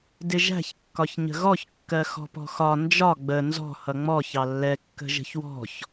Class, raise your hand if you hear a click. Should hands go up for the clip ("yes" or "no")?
no